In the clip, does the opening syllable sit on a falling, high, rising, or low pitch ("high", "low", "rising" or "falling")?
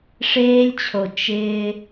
high